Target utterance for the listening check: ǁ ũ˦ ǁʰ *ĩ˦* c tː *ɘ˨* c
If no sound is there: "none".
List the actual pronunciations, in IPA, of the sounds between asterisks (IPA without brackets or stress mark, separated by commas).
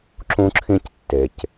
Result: ĩ˦, e˨